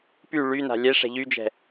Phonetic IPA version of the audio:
p y ɭ y n a̤ lʲ ɛ ʂ ɛ̤ ʎ y d͡ʒ ɛ̤

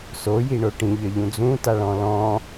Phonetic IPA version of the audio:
s o j i ɳ o ʈ ĩ ʎ ʌ ʎ ũ d͡z ũ t a ɭ ɔ̃ l ɔ̃

